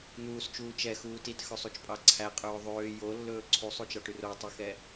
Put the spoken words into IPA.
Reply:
n̪ uː s t͡ʃ uː t͡ʃ ɛ x uː t i t x ɵ sˤ u t͡ʃ pʼ ɑ ǀʰ æ qʼ ɵː ðˤ øː j o lː ɵː ǀʰ u sˤ u t͡ʃ ɑ ʈ y r o tˤ y x ɛ

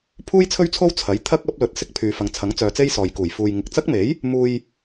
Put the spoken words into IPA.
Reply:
pʰ uː˥ j t͡sʰ ɵ˥ ɥ t͡sʰ o˥ w t͡sʰ ɐ˨˥ j t̪ʰ ɐ˥ k̚ ɐ˨˥ p̚ l ɵ˨˥ t̚ s ɪ˥ k̚ pʰ yː˨ f ɐ˨ ŋ t͡sʰ ɐ˨˥ ŋ t͡s œː˨˧ t͡s e˥ j s ɔː˨ j k uː˨˩ j f uː˨ j ŋ ɪ˨ k̚ t͡s ɐ˥ k̚ m e˨˥ j | m uː˨ j

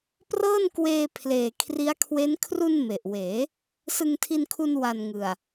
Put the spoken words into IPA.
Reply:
p r ɤː˥˩ n k w eː˧ pʰ l eː˨˩ kʰ r i˦˥ a̯ kʰ w e˦˥ n kʰ r u˧ n m e˨˩ ʔ w eː˩˦ | s ɯ˧ ŋ tʰ i˧ n kʰ u˧ n w a˨˩ n ŋ ɯ˨˩ a̯

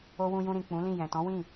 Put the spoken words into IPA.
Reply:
o˧ w ũ˧ j ũ˧ ɾ ĩ˨ k͡p ũ˨˦ l ĩ˦˨ j ɛ̃˨ t ɔ̃˨˦ w ĩ˦˨

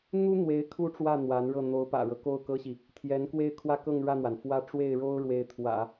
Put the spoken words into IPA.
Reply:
n̪ u˥ n̪ w e˧˥ ɪ̯ kʰ u˥˧ ʈ͡ʂ w ä˥˩ n̪ w a˧˥ n ɻ ɤ˥˩ n̪ o˧˥ ʊ̯ p ä̰˨˩ ɻ ɤ˦ k o˥˩ ʊ̯ k ɤ˥ ɕ i˨ | t̪ʰ j ɛ˧˥ n k w e˥˧ ɪ̯ kʰ w ä˥˧ k ɤ˥˧ ŋ ɻ ä˥˩ n̪ w a˩ n f w ä˥˧ ʈ͡ʂ w e˥˩ ɪ̯ ɻ o˥ ʊ̯ ɻ w e˥˩ ɪ̯ t̪ʰ w ä̰˨˩˦

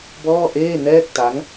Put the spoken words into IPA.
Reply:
b ɔː˥˩ ʔ eː˥˩ n ɛː˥˩ k̚ t a˦˥ ŋ

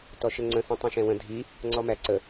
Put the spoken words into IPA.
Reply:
t ɔ ʃ ə ŋ͡ǀ ə̃ θ ĩ tˤ ĩ ʃ ɛ̃ w ə̃ dʱ i | ŋ͡ǀ ɔ m æ ǀ ə

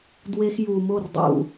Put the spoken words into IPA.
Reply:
d w e˦ x j u˨ m o˦˨ r dˤ ṵ˨

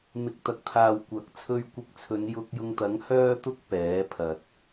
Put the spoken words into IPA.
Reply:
m ɪ˨ k̚ t̪ ɐ˨ k̚ t̪ʰ aː˨ w kʷ ɐ˨ k̚ t͡sʰ ɵ˧ ɥ kʷ ɪ˧ k̚ t͡sʰ ɵ˨˧ n j ʊ˧ k̚ j ʊ˧ ŋ t̪ ɐ˨˥ ŋ h œː˧ t̪ ʊ˧ k̚ p ɛː˨˥ pʰ ɐ˨ t̚

